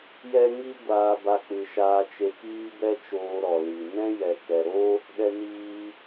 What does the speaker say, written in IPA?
jɛ˦ŋi˦ɡʷaː˧ ba˧k͡pɨ˨ʃaː˧ t͡ʃe˧kiː˦bɛ˦t͡ʃoː˧ ɾɔ˨li˨ nɛ̃˦jɛ˨ kɛ˨ɾo˦ | ɗɛ˧niː˧

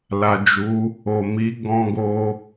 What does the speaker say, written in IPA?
la˨d͡ʒu˨˦ | o˨mi˨˦ ɡɔ̃˧ɡo˧

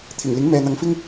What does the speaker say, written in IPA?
t̪ʰɪ˨˩ŋlɪ˨˥ŋ mɛː˨n̪ɐ˨˧ŋfɪ˥ŋ

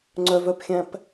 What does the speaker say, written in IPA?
ŋ͡ǀœvœpxʲæ̃p

